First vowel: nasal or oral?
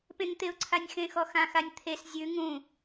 nasal